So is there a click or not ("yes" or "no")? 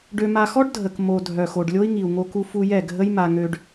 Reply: no